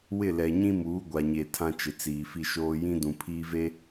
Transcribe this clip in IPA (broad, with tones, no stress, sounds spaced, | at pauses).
w ɪ˦˨ l ɛ˨ ɲ ĩ˦ m uː˨˦ ɡʷ a˨ ɲ e˨ tʰ ã˦ t͡ʃ ɪ˨ t͡s iː˨ f i˦ ʃ oː˦ j ĩ˦ d ũ˨ pʰ iː˦ v e˦